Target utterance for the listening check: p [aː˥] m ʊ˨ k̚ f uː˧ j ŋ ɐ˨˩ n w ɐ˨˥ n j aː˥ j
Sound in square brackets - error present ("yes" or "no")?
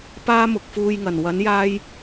no